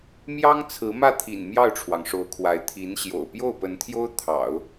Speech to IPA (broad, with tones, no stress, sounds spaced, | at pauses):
m j ɑ˥ ŋ t͡sʰ ɹ̩˧˥ m ä˥˩ t̪ʰ ḭ˨˩ n m j ɑ˥˩ ʊ̯ ʈ͡ʂʰ w ɑ˩ ŋ ʂ o˧˥ ʊ̯ kʰ w a˧˥ ɪ̯ t̪ʰ i˧˥ n ɕ j o̰˨˩ ʊ̯ p j o˥˩ ʊ̯ p ə˧˥ n t̪ʰ j o˥ ʊ̯ t̪ʰ ɑ̰˨˩˦ ʊ̯